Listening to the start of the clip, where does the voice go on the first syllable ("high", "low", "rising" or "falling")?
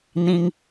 high